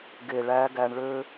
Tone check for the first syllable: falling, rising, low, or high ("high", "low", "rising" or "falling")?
low